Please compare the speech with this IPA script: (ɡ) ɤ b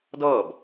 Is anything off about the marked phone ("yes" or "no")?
yes